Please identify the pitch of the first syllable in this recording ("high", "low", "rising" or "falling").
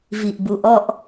low